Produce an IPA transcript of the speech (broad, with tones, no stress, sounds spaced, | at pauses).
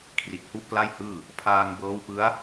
kʰ r i˨˩ t̚ h u˦˥ ʔ k l a˥˩ j h ɯː˥˩ | pʰ aː˧ ŋ b ɤː˦˥ w p ɯ˦˥ a̯